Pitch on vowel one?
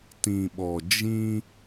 low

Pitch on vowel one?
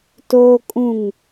high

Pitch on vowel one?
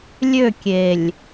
falling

